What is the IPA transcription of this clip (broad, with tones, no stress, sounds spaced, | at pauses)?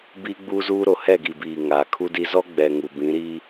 b i˦ ɡ͡b u˦ z uː˦ ɾ o˨ h ɛ˦˨ ɡ i˨ b iː˨ ŋ aː˨ kʰ u˦ d i˦ z ɔ˦ ɡ͡b ɛ˨ ŋ u˨ b ĩ˨˦ ɾ i˦